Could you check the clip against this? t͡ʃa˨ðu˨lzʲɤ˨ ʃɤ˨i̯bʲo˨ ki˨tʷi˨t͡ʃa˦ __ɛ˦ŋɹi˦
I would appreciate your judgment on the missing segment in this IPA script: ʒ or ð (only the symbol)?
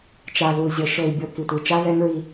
ð